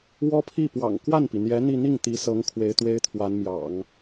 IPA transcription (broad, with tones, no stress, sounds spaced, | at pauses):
w ɔ˥ pʰ i˥˩ p w ɑ̰˨˩ ŋ k w a˥˩ n p i˩ n̪ j ɛ˧˥ n̪ i˥˧ n̪ i˥˩ ŋ t̪ i˧˥ s ɤ˧˥ ŋ kʰ w e˧˥ ɪ̯ t̪ w e˥ ɪ̯ t̪ʰ w a˧˥ n m j ɑ̰˨˩˦ ŋ